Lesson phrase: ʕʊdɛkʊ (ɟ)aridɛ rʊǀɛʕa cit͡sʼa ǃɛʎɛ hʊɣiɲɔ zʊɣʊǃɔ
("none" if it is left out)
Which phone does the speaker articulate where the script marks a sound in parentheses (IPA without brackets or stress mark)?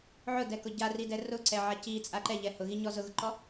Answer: ɟ